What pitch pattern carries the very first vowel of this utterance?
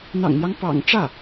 low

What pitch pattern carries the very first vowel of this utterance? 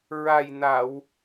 low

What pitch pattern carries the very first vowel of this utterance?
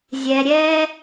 low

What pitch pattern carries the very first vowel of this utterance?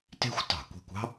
high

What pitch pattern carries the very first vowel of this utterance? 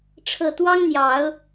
low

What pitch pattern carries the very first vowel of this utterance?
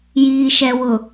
low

